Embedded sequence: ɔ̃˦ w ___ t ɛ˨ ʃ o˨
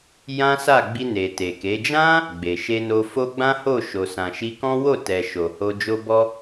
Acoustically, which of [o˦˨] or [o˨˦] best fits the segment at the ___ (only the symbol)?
o˦˨